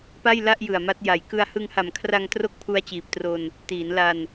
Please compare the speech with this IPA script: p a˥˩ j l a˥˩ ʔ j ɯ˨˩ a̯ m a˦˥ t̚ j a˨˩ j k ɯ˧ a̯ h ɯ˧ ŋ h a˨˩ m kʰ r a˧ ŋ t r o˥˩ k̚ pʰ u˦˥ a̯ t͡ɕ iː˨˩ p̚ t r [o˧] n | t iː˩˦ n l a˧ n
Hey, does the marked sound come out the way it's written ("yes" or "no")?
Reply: yes